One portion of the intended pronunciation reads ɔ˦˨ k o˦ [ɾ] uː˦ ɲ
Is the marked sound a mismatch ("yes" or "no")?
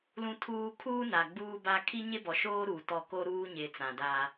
no